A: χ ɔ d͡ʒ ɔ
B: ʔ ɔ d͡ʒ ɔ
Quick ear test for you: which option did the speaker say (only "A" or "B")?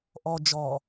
B